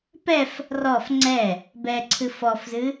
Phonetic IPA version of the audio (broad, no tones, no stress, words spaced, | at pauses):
pɛf | rɔf ŋ͡ǀɛ | bɛǀʰɨf ɔfzɨ